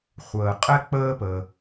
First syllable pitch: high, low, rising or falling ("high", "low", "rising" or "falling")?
low